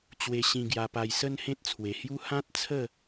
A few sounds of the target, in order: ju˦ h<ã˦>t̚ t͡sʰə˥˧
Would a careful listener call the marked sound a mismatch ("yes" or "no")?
no